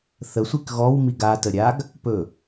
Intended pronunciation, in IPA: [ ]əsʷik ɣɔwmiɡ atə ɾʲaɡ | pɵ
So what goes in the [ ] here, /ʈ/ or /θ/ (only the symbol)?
θ